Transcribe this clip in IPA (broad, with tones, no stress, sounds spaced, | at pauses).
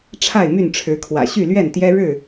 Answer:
ʈ͡ʂʰ a˥˨ ɪ̯ m y˥˨ n ʈ͡ʂʰ ɻ̩˨˦ kʰ w ä̰˨˩ ɕ y˥˨ l ɥ ɛ˥˨ n t̪ j ɛ˦ ɻ ɻ̩˥˨